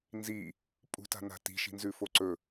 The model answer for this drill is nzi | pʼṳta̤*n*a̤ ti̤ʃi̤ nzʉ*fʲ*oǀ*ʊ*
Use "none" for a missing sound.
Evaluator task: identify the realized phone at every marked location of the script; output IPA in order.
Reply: n, f, ɵ

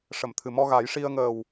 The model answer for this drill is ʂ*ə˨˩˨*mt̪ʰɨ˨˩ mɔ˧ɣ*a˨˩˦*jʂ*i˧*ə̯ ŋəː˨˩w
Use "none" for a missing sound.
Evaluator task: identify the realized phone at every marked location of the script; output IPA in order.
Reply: ə˨˩˨, a˨˩˦, i˧

